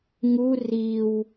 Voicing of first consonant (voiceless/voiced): voiced